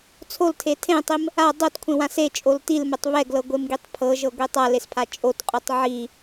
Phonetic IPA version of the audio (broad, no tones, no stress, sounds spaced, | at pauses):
t͡sʰ o l tʰ e tʰ ẽ tˤ i m | a dˤ o t kʷʰ ẽ w ã s e t͡ʃʼ o l t i l m ɛ tˤ β ɛ ɡ l ɤ ɡʷ e m ɡ i tˤ pʰ ɤ ʒ ɤ ɡʷ i tˤ a l e s pʰ a t͡ʃʼ o t qʼ o tˤ ʕ i